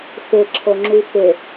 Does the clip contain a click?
yes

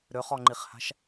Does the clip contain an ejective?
no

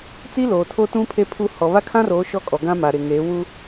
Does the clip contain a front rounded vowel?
no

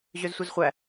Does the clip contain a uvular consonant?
yes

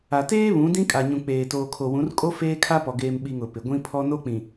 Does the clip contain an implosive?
yes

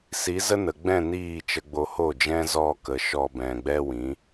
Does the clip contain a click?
no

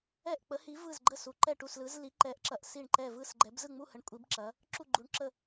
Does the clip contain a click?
yes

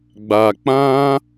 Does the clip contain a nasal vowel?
yes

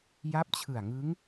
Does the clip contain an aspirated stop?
yes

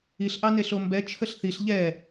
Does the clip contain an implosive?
no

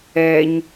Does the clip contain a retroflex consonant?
no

